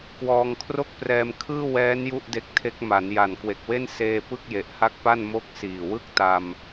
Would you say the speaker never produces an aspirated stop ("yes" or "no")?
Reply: no